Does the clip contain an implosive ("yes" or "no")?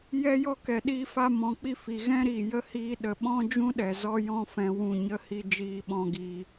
yes